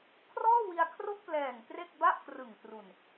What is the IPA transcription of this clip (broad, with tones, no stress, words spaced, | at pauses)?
kʰrɔː˥˩wi˧a̯kʰro˥˩k̚plɛː˨˩ŋ kre˥˩k̚ba˥˩ʔkrɯ˨˩ŋ tru˨˩n